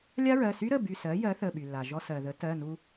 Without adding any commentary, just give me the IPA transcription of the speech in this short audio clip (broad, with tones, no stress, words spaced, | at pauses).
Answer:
lʲa˦˥ɹɜ˩˧˩sy˦˥ɾə˩˧˩ by˧˩sɜ˩˥ jɜ˩˥θə˩˧˩ɓy˩lːa˩ ʒɔ˧sɜ˩ðə˩˥ tɜ˩˧˩nu˧